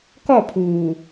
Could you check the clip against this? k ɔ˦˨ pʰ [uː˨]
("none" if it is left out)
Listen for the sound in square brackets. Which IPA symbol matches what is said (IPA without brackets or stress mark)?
uː˨